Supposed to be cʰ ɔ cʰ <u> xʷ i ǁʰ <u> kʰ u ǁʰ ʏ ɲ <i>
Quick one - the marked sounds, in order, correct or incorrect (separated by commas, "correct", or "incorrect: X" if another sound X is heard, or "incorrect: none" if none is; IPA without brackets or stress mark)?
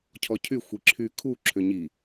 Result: incorrect: y, incorrect: y, correct